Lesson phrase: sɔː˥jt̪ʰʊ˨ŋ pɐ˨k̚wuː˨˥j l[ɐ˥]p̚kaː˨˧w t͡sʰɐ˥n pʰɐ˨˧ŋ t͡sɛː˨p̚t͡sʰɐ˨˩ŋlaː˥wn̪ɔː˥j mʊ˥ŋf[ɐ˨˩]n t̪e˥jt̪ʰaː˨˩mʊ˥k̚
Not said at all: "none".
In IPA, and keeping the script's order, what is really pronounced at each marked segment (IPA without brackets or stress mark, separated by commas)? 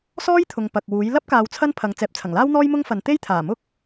ɐ˥, ɐ˨˧